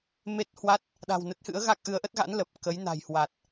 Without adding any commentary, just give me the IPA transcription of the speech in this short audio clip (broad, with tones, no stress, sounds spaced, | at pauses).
m e˦˥ t̚ h w a˦˥ t̚ | ɗ a̤˨˩ w n ə˦˥ t̚ h ɨ̰˧˥ ə̯ ɣ a˦˥ k̚ ʔ ɨ˨˦ ə̯ ʔ ə˦˥ t̚ ɣ a̰˧˥ n l ə˨˩ p̚ k ə˨˦ j n a̤˨˩ j h w a˨˩ t̚